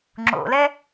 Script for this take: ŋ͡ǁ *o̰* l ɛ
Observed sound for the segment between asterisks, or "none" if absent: o̰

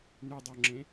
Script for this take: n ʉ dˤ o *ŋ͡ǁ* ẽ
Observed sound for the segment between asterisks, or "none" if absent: ŋ͡ǁ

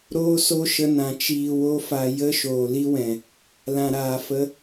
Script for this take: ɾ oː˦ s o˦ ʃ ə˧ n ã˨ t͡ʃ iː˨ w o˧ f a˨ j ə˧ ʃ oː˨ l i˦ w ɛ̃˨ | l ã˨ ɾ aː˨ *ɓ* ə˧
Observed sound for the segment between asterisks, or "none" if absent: f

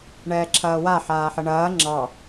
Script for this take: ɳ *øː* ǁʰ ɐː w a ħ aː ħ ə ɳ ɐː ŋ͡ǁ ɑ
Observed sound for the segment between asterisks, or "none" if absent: ɛː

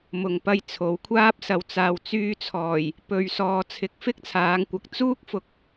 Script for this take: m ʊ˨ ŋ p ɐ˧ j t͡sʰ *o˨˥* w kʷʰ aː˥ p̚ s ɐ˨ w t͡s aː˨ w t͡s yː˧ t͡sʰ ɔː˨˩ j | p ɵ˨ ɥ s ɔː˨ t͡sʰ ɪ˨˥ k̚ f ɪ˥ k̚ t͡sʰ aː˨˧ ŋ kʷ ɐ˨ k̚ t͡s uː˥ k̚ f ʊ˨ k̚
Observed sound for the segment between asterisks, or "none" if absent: o˨˧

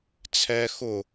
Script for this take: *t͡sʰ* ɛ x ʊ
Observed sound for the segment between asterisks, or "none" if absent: t͡sʰ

